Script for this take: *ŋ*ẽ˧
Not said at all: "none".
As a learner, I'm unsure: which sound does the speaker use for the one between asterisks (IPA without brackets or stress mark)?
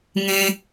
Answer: ŋ